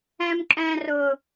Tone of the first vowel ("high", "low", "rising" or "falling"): high